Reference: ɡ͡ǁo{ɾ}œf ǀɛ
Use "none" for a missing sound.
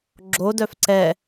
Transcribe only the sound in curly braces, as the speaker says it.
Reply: d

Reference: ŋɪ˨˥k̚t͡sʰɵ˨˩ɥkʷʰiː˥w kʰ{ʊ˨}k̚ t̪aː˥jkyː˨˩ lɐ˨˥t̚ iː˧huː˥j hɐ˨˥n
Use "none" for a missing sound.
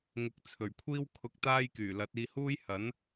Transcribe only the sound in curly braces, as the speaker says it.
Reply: ʊ˧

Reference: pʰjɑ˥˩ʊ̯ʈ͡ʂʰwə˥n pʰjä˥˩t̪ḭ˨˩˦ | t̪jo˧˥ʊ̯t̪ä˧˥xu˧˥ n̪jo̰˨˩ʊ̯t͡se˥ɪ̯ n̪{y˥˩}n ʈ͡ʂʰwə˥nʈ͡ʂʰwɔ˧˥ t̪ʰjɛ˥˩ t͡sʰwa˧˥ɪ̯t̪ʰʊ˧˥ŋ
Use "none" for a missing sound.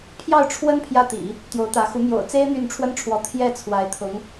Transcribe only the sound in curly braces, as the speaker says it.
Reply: y˥˩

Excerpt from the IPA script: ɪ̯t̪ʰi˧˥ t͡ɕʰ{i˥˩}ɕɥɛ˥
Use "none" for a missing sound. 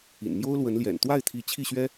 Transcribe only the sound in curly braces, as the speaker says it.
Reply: i˥˩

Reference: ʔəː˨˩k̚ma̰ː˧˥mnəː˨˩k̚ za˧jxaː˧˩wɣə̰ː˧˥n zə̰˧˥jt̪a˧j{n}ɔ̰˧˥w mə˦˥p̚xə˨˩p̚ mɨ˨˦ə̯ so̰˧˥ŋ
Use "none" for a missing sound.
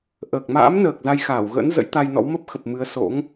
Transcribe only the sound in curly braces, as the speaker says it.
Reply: n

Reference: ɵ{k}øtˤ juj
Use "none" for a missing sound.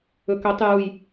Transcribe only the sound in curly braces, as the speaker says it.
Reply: k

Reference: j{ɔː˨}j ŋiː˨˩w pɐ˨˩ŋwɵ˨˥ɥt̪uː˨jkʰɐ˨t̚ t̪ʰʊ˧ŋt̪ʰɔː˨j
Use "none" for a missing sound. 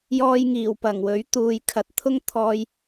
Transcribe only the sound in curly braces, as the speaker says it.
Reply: ɔː˧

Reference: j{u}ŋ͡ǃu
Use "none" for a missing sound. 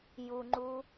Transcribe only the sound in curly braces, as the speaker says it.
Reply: u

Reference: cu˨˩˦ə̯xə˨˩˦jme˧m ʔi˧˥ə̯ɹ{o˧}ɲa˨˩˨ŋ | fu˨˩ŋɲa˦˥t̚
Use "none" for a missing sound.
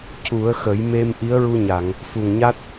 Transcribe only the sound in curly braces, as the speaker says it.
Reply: u˧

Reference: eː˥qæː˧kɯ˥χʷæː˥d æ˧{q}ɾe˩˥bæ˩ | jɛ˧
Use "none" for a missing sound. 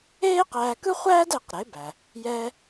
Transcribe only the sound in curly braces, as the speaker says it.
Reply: q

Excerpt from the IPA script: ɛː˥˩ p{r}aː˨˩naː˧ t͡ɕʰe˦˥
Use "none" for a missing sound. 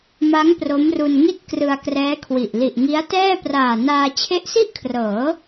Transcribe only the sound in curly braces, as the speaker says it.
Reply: r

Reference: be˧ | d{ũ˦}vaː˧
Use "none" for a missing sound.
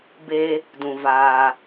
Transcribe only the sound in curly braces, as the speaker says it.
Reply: ũ˨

